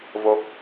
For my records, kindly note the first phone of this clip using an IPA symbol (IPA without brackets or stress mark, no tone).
v